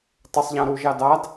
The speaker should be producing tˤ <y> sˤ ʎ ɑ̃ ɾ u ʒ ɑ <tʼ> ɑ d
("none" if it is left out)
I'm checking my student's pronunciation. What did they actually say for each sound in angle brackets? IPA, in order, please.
ɪ, d

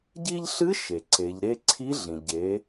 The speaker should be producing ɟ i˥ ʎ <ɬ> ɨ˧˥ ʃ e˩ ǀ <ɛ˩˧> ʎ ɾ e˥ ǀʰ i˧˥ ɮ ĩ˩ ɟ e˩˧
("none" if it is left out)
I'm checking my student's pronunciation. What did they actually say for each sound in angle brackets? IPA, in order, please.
ɬ, e˩˧

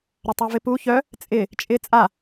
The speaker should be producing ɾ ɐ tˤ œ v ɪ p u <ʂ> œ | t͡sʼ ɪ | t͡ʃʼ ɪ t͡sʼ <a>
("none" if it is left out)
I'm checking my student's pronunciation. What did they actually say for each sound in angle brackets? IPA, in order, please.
ç, a

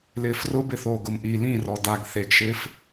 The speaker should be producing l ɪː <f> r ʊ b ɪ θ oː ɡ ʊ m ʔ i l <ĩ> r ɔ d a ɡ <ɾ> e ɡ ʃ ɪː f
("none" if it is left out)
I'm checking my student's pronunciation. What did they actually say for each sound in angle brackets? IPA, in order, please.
f, ĩ, θ

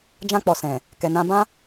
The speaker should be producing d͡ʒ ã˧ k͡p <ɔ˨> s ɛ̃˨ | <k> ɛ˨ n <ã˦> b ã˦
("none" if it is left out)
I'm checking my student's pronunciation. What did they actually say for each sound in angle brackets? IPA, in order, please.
ɔ˨, k, ã˧

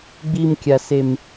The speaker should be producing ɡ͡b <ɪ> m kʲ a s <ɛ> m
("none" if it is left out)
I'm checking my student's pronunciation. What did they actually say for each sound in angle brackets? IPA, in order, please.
i, e

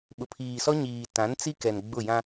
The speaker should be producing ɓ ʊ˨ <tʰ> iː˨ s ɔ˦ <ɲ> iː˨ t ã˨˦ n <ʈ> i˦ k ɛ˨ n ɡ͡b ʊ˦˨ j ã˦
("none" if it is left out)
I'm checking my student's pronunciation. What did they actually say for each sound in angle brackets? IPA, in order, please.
pʰ, ɲ, t͡s

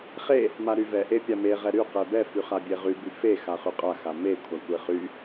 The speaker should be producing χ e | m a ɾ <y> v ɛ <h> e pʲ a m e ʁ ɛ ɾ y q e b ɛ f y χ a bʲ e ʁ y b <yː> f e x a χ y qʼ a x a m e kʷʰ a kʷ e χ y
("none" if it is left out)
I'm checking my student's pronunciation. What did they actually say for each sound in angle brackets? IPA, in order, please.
y, ʔ, y

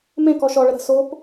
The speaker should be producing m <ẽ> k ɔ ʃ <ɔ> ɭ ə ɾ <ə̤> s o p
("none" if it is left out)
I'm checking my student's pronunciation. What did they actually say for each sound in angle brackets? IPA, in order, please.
ẽ, ɔ, ə̤

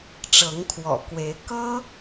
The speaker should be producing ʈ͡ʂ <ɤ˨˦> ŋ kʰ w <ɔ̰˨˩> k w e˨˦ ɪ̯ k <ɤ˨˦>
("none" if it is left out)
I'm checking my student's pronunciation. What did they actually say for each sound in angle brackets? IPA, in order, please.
ɤ˨˦, ɔ̰˨˩, ɤ˦

